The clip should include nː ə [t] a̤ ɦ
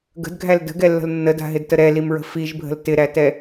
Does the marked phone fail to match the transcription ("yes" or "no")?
yes